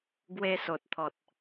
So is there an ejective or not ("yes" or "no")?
no